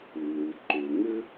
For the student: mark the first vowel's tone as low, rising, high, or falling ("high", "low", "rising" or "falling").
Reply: low